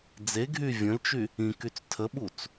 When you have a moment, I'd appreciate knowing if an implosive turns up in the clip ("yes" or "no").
yes